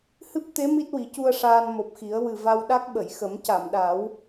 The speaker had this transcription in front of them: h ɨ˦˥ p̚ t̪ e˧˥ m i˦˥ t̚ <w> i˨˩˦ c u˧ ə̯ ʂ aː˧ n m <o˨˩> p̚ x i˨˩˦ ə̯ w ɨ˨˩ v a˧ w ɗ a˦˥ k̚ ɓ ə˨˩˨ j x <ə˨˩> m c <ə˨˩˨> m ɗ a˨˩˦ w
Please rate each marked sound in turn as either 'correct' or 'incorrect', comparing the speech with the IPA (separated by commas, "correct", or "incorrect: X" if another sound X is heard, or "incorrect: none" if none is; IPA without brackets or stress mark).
correct, correct, incorrect: ə˨˩˦, incorrect: a˨˩˨